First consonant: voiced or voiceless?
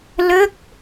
voiced